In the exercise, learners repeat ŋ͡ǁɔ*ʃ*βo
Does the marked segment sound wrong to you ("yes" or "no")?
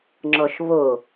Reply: no